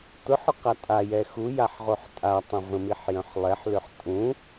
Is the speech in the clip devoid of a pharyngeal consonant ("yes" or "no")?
no